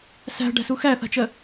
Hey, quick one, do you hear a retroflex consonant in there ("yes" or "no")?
yes